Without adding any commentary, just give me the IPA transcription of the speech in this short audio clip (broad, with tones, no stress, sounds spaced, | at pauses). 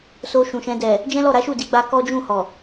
s o˧ ʃ ũ˨ ʃ ɛ̃˧ d ɛ˨ | d͡ʒ ɛ̃˦ l ɔ˦˨ ɾ a˨˦ ʃ u˦˨ d i˧ ɡ͡b a˧ k ɔ˦ d͡ʒ ũ˦˨ h ɔ˨